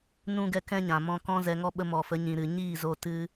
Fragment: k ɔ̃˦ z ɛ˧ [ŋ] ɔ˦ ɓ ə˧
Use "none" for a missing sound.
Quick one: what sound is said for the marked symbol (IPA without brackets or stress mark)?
ŋ